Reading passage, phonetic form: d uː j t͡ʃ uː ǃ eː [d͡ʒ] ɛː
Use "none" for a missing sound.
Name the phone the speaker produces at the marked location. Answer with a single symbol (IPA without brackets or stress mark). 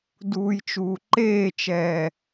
t͡ʃ